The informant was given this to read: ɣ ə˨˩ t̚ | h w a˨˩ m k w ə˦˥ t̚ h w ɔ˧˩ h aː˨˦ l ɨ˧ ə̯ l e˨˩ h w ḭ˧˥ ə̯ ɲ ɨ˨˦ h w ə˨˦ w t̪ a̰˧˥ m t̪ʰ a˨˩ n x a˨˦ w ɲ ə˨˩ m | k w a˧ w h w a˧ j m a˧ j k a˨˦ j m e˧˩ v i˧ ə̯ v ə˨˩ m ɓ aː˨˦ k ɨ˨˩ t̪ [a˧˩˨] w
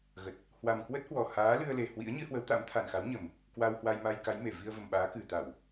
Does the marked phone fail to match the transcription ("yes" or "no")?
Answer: no